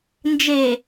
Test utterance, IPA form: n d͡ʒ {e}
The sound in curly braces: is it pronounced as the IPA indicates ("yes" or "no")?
yes